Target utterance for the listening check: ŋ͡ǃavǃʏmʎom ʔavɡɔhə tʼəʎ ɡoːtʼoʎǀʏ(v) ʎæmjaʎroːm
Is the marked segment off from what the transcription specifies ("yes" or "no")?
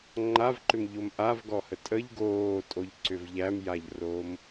no